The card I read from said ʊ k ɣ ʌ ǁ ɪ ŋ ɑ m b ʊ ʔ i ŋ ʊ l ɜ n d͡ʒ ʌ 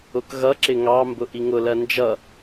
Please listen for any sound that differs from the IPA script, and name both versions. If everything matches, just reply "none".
none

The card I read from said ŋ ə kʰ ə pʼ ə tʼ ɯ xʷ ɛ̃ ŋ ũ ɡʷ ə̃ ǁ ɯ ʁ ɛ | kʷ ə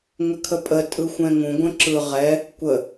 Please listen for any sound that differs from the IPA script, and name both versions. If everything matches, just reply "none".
none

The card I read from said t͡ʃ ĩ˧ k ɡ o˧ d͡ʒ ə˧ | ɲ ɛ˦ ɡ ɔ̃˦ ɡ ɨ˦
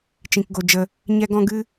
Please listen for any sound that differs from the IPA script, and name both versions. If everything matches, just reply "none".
none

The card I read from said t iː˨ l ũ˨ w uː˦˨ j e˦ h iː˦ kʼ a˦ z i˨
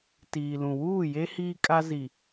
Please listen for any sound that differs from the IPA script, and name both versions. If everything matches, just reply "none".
none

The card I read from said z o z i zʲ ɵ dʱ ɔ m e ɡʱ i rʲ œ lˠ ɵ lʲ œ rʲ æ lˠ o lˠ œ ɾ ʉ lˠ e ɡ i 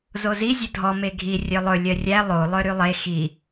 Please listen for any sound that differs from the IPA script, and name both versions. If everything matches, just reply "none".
ɡ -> x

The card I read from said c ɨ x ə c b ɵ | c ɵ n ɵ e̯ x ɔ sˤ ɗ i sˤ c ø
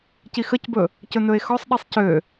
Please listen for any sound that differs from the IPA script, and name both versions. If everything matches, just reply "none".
ɨ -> i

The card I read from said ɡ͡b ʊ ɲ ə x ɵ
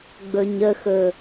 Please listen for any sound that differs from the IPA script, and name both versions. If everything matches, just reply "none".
ʊ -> ɵ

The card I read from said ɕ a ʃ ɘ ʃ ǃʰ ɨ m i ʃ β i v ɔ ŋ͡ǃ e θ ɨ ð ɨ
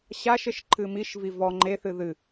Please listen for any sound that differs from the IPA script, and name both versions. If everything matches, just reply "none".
β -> v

